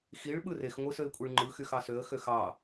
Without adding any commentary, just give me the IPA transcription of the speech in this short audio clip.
xiɭ ɓɯrexŋʷɯ søɪ̯kʷʼiɭŋ͡ǃɯxyx ɑsøə̯xøx ɑ

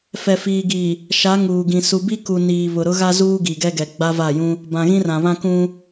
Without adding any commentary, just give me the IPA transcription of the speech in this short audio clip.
fɛ˨fiː˨ɡi˨ | ʃa˨˦ ŋuː˨ɡĩ˨ su˨bi˦ku˨ niː˨βʊ˨ɾʊ˦ɣa˦ zuː˦ɡi˨ɡɛ˦ɡɛ˨ ɡ͡ba˦va˦˨jũ˦ | bã˨ɣĩ˦rã˨ βã˦kũ˦

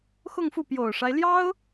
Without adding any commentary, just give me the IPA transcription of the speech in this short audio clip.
xʊ˥˧ŋfu˥˩ pjo˨˩ʊ̯ʂa˦ɪ̯ljɑ˥ʊ̯

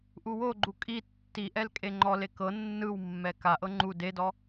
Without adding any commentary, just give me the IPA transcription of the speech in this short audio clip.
ʔuwoɡ͡ǃu kʼi tːiʔɛl kʼeŋ͡ǃɔle kɤ nːɯwmːɛ kaʔɤ ŋ͡ǃu dedɔ

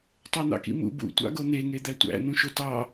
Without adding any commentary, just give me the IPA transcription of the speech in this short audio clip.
tˤæn̪ɑ̰kḭmṵ bṵtʷɑ̰ ɡon̪eŋe d̪ætʷæ̰ n̪ũʃotɑ

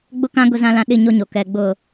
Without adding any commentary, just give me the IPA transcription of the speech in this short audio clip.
ɡ͡bʊ˦kã˦ ɡʊ˦zã˦lã˦ ɗi˦˨ɲo˦ɲo˨ kɛ˨ɡ͡bʊ˦˨

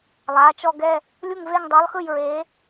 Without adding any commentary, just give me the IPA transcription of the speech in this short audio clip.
lˠa˩˧˩ t͡ʃɔ˦˨ɡɛ˦˨ | lʲu˦˨ŋve˦˨ŋdˤɤ˨˥lˠxɯ˦˨j ɹe˨˥

